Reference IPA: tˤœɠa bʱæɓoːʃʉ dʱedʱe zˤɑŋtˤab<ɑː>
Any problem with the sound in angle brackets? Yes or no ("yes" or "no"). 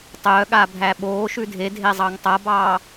no